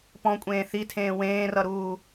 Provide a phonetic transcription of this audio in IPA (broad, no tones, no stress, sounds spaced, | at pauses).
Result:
p ɔ̃ kʷʼ ẽː θ i tʰ ẽː w ẽː r ʌ ɾ uː